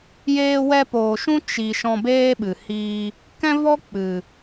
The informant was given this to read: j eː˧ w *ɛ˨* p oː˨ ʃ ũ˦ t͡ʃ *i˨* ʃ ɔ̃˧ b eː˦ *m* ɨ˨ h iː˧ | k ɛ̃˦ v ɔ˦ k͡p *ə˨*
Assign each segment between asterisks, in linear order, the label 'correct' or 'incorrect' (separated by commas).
incorrect, correct, incorrect, incorrect